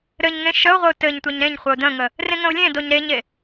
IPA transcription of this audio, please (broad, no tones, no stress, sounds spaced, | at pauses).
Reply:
ɾ ɘ ɲ ŋ ẽ ʃ ə ʊ̯ ʁʷ ə ʊ̯ t ɘ ɲ tʷ e ɲ ɾ ẽ ɲ χʷ ɘ ʊ̯ d ə̃ ŋ ə | r ẽ ŋ ə̃ ʊ̯ lʲ ẽ d o ɲ ɾ e ɲ e